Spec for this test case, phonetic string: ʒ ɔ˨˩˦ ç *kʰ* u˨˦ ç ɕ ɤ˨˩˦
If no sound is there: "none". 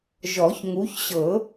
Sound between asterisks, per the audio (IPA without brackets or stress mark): ŋ